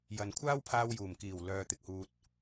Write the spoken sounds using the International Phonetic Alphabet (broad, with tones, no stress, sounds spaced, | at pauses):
j ɐ˨ n kʷʰ aː˥ w pʰ aː˧ w j uː˨˩ m k iː˨˩ w l œː˨ t̪ ɪ˨ k̚ h uː˨ t̚